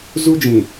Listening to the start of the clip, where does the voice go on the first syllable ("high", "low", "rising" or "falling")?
high